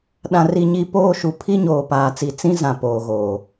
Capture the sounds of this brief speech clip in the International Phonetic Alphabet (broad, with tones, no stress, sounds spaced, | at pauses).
ɗ ã˨ r i˨ ɲ i˨ p oː˦ ʃ u˨ pʰ i˦ ɲ oː˨ p aː˨ t͡s i˨ t͡s ĩ˦ z ã˨ p oː˨ ɣ oː˨